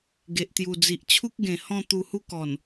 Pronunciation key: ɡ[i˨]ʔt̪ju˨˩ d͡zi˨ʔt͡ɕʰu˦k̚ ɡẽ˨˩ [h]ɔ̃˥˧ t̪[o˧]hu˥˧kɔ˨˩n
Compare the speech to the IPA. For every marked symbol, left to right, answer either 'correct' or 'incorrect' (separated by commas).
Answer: incorrect, correct, incorrect